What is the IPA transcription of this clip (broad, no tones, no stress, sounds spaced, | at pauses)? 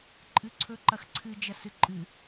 ǃʼ ɨ ǀʰ ɵ ǃ ɐ x ǀʰ ɨ d͡ʒ ɐ s ɨ ǃʼ ɨ